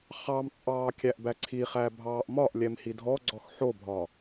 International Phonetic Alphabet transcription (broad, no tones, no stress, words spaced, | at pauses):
χɑmt͡sʼɑː kʲæʔbæǀʰiχæ bʱɑːʔmɒʔlʲɛm hidʱɔɡ͡ǀɔx ħobʱɒ